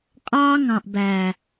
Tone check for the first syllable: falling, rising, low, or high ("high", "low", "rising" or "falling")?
high